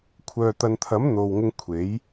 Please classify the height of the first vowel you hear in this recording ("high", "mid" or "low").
mid